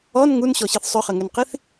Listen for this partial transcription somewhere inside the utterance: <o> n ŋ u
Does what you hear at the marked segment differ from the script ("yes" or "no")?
yes